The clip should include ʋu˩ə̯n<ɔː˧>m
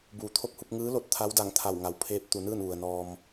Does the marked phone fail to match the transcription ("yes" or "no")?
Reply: no